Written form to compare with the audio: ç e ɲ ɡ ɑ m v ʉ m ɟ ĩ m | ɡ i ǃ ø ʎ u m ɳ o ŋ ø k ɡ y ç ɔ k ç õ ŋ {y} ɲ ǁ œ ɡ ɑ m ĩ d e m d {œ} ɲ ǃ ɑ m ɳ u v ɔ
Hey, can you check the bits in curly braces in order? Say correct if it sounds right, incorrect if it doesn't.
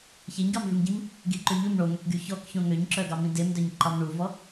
incorrect, correct

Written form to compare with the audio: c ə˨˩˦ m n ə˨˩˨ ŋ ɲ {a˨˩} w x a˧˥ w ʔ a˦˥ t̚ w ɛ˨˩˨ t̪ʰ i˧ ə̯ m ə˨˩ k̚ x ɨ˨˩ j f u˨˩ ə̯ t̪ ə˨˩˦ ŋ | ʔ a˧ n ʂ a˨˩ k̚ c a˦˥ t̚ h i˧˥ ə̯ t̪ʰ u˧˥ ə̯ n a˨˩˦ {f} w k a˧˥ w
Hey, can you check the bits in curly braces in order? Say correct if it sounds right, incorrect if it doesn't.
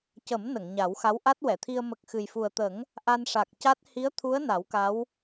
incorrect, incorrect

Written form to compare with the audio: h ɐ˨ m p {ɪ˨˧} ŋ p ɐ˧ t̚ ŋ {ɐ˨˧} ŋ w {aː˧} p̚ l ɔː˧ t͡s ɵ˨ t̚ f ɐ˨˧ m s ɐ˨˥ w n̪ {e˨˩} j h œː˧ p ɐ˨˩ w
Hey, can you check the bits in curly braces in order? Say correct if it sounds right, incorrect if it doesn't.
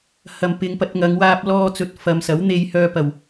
correct, correct, correct, incorrect

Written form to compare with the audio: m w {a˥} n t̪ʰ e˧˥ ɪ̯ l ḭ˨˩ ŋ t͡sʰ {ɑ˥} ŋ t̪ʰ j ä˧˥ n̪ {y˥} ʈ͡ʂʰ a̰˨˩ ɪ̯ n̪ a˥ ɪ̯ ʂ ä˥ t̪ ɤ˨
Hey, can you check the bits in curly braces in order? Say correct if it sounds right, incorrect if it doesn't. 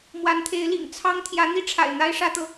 incorrect, correct, incorrect

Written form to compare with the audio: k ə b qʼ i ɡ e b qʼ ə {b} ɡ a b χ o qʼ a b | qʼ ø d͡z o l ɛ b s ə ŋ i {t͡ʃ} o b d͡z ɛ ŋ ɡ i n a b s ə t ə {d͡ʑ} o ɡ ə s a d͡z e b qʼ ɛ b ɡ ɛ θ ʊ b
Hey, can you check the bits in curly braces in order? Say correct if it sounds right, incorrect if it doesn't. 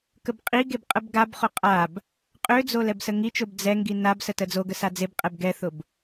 correct, correct, incorrect

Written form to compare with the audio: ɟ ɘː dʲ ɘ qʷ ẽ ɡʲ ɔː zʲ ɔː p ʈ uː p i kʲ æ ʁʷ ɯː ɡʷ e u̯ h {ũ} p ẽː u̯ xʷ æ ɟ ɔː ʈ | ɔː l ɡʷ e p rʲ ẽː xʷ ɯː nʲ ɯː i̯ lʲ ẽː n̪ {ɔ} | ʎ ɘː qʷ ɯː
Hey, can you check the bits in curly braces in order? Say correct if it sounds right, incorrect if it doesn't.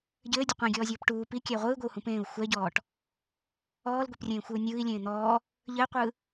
correct, incorrect

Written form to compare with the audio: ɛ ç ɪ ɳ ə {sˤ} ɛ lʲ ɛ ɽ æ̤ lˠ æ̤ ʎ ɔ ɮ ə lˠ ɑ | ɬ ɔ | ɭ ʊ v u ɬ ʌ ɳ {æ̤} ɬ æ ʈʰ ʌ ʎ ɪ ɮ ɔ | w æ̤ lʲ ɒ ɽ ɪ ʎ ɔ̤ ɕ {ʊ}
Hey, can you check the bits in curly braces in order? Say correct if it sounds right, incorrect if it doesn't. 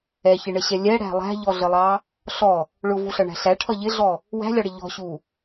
incorrect, correct, incorrect

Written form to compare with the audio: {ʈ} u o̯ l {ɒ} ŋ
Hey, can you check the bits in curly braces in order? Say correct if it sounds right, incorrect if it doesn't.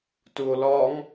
incorrect, correct

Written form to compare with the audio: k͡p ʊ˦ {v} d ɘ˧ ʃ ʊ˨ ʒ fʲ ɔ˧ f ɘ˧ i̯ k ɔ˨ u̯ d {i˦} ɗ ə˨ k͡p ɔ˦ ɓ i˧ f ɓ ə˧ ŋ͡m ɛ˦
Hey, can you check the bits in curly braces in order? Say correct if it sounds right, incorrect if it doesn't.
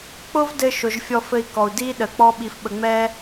correct, correct

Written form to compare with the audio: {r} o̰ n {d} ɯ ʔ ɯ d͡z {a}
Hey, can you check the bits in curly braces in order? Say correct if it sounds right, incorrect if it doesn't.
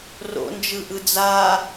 correct, incorrect, correct

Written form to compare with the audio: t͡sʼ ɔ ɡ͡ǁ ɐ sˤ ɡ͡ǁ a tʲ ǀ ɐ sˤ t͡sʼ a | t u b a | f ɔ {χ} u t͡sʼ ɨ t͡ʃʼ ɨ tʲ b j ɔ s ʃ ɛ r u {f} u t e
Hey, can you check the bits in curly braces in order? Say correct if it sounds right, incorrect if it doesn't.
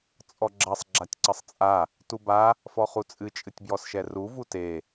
correct, incorrect

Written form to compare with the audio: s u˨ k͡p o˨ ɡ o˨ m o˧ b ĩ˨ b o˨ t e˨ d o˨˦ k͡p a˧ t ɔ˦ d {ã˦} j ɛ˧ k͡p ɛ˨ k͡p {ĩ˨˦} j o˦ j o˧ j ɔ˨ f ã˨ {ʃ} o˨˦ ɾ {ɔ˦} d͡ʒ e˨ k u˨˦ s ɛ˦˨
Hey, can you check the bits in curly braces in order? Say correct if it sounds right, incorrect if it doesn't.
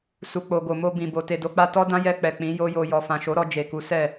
correct, correct, correct, incorrect

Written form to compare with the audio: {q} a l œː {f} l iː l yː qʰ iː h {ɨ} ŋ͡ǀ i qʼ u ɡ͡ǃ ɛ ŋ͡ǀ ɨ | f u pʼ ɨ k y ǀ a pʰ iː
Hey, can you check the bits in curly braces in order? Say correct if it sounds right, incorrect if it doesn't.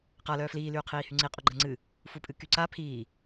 correct, correct, incorrect

